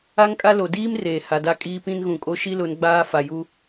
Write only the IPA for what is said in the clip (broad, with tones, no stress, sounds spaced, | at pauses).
a˦ ŋ kʼ a˦ l o˨ d iː˦ m r eː˨ h a˨ d a˦ kʼ iː˦ p ĩ˦ n ɣ ũ˨ kʼ o˦ ʃ i˦ l ʊ˨˦ n ɡ͡b aː˦ f a˨ j u˦